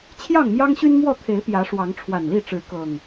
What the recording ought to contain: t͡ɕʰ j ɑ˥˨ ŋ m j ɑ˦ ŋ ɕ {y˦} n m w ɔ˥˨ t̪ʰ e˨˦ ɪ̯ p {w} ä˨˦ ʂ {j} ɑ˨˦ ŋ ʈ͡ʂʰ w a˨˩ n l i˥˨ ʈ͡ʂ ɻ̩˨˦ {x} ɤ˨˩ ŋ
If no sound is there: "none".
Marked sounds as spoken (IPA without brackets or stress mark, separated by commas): y˦, j, w, k